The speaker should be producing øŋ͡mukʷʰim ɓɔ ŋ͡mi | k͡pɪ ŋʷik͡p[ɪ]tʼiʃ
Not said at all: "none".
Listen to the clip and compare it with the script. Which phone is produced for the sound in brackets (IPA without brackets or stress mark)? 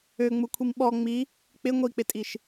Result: ɪ